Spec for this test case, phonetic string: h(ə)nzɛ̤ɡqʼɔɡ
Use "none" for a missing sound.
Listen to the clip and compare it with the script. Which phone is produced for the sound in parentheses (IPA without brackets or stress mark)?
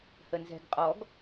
ə